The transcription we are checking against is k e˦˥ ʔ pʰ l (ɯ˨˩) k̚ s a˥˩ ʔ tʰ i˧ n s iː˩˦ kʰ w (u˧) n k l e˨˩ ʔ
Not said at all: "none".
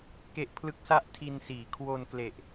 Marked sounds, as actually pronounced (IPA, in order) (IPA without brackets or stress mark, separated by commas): ɯ˦˥, o˧